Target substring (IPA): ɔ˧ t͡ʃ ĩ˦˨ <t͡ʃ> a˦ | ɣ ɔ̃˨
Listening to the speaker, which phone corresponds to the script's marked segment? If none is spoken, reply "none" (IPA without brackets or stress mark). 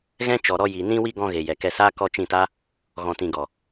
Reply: t